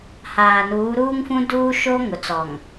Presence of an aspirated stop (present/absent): absent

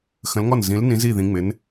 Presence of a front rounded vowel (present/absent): absent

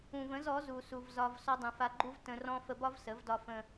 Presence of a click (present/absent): present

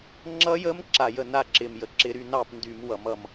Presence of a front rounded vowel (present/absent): present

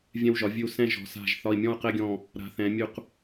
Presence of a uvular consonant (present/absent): present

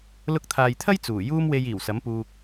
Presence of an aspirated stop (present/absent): present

